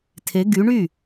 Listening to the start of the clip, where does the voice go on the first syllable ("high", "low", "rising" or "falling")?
rising